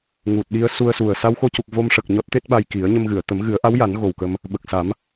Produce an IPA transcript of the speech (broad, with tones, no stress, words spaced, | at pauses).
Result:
ŋu˨˩t̚ɗi˧ə̯su˧ə̯su˨˩ə̯ sa˧wxo˧cu˨˩k̚ vo˧mʂə˨˩k̚ ɲɔ˦˥t̚t̪e˦˥t̚ɓa˧j ki˨˩˦ə̯ɲə˧mɣɨ˨˩˨ə̯ t̪ə˨˩˦mɣɨ˨˩˦ə̯ʔa˧˥wja˨˩˦n ɣo˨˩wkə˧m | ɓə˨˩k̚sa˨˩˦m